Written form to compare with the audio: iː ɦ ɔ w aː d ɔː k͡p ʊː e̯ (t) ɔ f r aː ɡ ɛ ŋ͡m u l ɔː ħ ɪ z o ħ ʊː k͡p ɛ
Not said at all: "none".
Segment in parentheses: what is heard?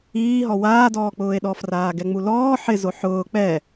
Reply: ɗ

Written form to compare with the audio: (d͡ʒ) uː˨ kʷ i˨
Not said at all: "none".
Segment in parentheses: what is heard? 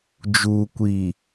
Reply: d͡ʒ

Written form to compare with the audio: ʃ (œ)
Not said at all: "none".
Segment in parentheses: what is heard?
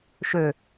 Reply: ø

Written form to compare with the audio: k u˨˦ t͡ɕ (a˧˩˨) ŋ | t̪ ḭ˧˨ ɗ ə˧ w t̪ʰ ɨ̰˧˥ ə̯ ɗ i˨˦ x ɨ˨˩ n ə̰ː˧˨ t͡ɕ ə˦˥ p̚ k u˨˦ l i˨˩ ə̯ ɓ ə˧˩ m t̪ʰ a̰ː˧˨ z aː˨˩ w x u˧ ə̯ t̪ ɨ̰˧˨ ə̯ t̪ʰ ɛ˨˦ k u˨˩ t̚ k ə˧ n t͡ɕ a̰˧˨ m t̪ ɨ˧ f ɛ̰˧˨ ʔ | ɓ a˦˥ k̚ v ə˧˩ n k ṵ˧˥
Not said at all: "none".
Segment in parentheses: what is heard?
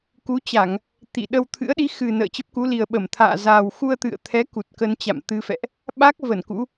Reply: a˧˩˨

